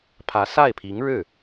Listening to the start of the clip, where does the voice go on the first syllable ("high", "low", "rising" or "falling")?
rising